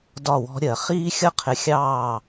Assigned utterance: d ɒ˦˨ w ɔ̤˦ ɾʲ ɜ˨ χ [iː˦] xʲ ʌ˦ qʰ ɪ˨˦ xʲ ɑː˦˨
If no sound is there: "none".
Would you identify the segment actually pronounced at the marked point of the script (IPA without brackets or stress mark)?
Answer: iː˦